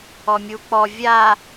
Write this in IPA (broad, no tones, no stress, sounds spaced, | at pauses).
ɔ mʲ u k͡p ɔ vʲ a